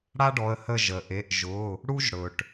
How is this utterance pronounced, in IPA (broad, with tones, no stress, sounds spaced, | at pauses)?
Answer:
ɽ a˥ ɖ ɔ˩˧˩ ə̯ h ə˦˨ ʒ ə˩ ʔ e˩˧˩ ʔ ʒ ʊ˩˧˩ | ɽ u˥ ʒ ɽ ɵ˩ ʈ